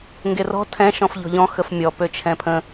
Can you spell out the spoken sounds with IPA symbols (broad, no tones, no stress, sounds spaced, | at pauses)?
ŋ ɡ e r ɔ̤ tʰ ɛ̃ ʃ ɔ̃ f ʎ ɔ̤ ʎ ɔ̃ x ə f mʲ ɔ p ø t͡ʃʰ ɛ̃ pʰ ə̃